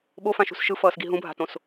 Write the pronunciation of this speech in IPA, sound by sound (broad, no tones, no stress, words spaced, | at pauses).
ɓofãʃṳs ʃɯfʌːsɡi ɦũbʱa̤tõs